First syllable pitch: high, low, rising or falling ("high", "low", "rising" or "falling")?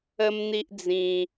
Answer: high